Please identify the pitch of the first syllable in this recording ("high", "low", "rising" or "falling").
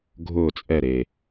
falling